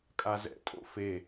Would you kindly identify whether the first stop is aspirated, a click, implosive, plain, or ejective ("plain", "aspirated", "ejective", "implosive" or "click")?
ejective